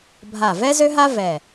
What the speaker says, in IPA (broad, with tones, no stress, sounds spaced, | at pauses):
bʱ a˧˩ v ɛ˥ z ø˥ ɦ a˥ v ɛ˧˩